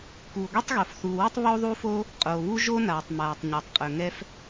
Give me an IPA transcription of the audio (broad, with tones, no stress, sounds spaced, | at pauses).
k uː˩ ɡʷ i˥ tˤ ɣ o˩ f θ uː˩ w i˥ tˤ β o˥ ðˤ u˥ f o˥ | qʼ oː˩ β u˥ ʒ o˥ n aː˩ tˤ m aː˩ tˤ ɲ a˩ tˤ qʼ ɵ˩ ŋ ɛ˥ f